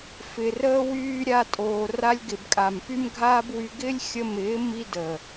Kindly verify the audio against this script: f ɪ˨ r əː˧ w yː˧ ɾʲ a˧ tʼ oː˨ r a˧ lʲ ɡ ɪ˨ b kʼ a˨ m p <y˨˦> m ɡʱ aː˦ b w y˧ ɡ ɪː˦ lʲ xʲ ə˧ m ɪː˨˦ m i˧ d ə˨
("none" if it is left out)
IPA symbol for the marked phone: y˦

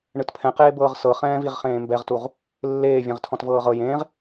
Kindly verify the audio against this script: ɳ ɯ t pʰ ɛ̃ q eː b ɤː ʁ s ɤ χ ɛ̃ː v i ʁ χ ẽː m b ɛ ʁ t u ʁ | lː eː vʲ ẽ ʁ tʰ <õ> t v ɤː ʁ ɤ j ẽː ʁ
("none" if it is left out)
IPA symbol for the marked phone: ɔ̃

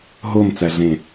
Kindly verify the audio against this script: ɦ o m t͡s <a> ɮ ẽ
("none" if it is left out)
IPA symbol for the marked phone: æ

